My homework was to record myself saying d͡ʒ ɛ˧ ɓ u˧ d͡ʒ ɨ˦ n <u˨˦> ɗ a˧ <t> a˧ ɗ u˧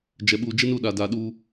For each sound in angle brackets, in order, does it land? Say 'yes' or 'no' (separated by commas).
no, no